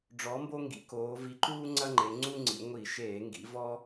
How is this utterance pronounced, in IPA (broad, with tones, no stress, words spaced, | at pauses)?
ɖ͡ʐɔ˨˥mbo˥ ŋɡḭ˩˧koː˩˧ vi˨˥ǃuː˥ ŋ͡ǀɐ˥ŋ͡ǃe˩˧ŋ͡ǀu˥ŋ͡ǀḭ˩˧ ŋʷi˧˩˧ʃeː˧˩˧ŋɡḭ˩˧ vɔ˥